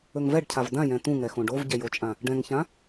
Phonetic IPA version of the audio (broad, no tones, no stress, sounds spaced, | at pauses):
ɵ ŋ v ɛ ɖ cʰ a v d ã j ɛ̃ t̪ ũ ŋ ɛ x õ ɖ o v ɟ ɛ j o t͡ʃʼ ã | ɖ ɛ̃ ŋ ç ã